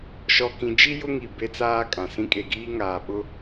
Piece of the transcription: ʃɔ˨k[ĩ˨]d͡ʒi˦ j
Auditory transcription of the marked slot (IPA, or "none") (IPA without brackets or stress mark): ĩ˨